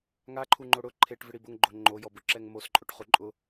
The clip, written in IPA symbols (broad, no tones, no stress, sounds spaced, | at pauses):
ŋ a ǃʰ u ŋ͡ǃ o ɽ ʊ ǃʰ e ʈ v ɪ ɽ i b ʊ ŋ ɡ͡ǃ o ŋ͡ǃ o j ɔ b ʊ ǁ ɛ ŋ m o s ǃʼ o ʈ χ u ǃʼ ʊ